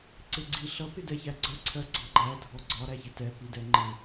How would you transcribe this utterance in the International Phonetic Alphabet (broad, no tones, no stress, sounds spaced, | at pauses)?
ǀ ɪ ɡ͡ǀ i ɬ ʌ p ɪ d ɛ ç æ ɡ͡ǀ ʌ ǀʰ ɜ ɡ͡ǀ ɑ ɡ͡ǃ æ dʱ ɔ ɡ͡ǀ ɒ ɾ æ ç ɪ t ɛ p i d ɛ ŋ͡ǃ ɪ